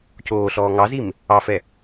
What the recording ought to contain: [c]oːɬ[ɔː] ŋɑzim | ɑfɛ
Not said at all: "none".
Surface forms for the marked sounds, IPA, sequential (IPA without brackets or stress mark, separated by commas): c, ɔː